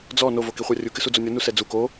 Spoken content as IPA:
d͡z ɔ n o v o k i χʷ a rʲ u k ɨ s u d͡z o nʲ ɔ n u s ɛ d͡z u k o

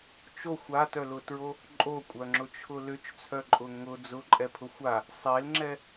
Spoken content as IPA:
t͡ʃ o xʷ a t œ l ʊ t ɹ o | ǃʼ o kʷʼ œ ŋ͡ǁ ʊ t͡ʃʰ ʊ l ʏ t͡ʃ t͡sʰ œ ǃʼ ʊ ŋ ʊ d͡z ʊ ǃʼ ɛ pʰ ʊ xʷ a | sˤ e l ŋ͡ǁ ɛ

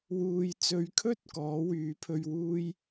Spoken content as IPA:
w uː˨ j t͡s ɵ˨˧ ɥ kʰ ɵ˥ t̚ k ɔː˨˥ w yː˨˥ pʰ ɵ˧ ɥ w uː˥ j

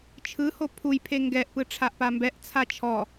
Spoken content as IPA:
t͡ʃʰ ɯ h o pʰ u j pʰ e ŋ ɡ ɛ ʔ p ɯ ʈ͡ʂʰ a ʔ p a m b ɛ ʔ t͡sʰ a t͡ʃʰ ɔ

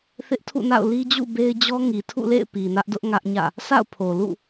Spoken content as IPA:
θ ɪ˦ ʔ tʰ ṵ˦˨ n a̰˦˨ ʊ̯ l i˦ d͡ʑ ṵ˦˨ b e˦ ɪ̯ d͡ʑ ɔ˦ ŋ i˨ tʰ ṵ˦˨ l ḛ˦˨ ɪ̯ p i˨ n ä˦ ʔ d ʊ˦ ʔ ŋ ä˦ ʔ ɲ ä̰˦˨ | s a̰˦˨ ʊ̯ pʰ o˨ l ṵ˦˨

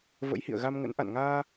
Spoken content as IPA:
v ə̰˧˥ j h ḭ˧˨ ə̯ ɣ a˧ m ŋ ə̰˧˥ n ʔ a̰˧˨ n ŋ aː˧

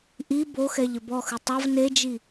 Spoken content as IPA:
ʔ i b o x ɛ ʎ ɘ b ɔ x ɨ tˤ ɐ v n e d͡ʒ i

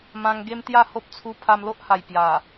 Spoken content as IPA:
m ã˧ ŋ ɡ e˦ m t̪ j a˥˧ h o˦ p̚ t͡sʰ u˦ pʰ a˧ m l o˦ ʔ h a˨˩ j p j a˨˩

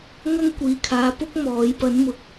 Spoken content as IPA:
ŋ ɐ˥ ŋ kʷ iː˨ kʰ aː˨ p ʊ˥ k̚ m ɔː˨˥ j p ɐ˨˥ n m ʊ˨ k̚

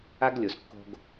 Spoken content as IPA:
a˦ ɡ lʲ o˨ s kː o̤˧ ɡ

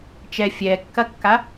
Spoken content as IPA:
t͡ʃ ɛ fʲ ɛː kː ɐ kː a

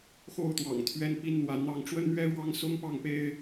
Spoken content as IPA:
x o˥ ʊ̯ t̪ w ɑ̰˨˩ ŋ t̪ʰ ɥ ɛ˥ n p i˥ n n̪ w a˧˥ n n̪ ɑ˥ ŋ ʈ͡ʂ w ə˥ n n̪ ɥ ɛ˥ ɻ w ɑ˥ ŋ s ʊ˥ ŋ p ɑ˥˩ ŋ p e˥ ɪ̯

